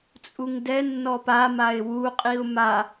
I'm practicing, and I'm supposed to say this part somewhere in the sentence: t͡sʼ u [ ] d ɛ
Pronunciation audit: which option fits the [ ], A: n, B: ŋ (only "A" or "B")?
B